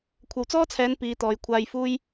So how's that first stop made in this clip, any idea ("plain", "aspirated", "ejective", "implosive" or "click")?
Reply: aspirated